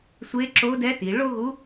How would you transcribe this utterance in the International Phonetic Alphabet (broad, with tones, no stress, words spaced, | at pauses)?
sʷe˧˥ǁo˧˥dɛ˧˥ ti˩˧ɭo˥ɣu˧˥